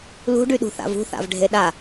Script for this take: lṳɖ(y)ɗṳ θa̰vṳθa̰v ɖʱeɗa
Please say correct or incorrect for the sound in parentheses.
correct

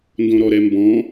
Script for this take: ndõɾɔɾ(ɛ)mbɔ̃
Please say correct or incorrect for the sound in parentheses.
correct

